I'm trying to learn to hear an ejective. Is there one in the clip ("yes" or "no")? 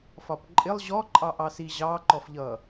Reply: yes